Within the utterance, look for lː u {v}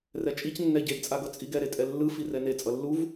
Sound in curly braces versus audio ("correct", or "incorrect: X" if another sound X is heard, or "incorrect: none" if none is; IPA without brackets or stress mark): correct